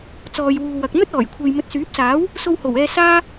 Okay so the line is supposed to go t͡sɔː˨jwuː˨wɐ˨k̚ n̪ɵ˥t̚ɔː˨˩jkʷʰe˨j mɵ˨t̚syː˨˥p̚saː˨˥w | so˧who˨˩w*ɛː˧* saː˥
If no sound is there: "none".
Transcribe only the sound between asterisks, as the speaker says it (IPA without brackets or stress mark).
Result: ɛː˧